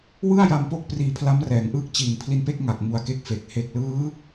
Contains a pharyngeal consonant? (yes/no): no